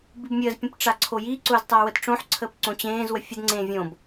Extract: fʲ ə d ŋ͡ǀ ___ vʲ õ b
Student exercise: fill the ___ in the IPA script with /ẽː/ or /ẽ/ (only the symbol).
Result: ẽː